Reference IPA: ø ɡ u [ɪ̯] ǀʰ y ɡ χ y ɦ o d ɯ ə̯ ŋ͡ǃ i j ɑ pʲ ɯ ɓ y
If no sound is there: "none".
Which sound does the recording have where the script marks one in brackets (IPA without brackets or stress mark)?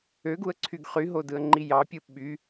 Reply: ə̯